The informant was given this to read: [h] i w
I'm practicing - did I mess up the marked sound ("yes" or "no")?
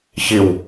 yes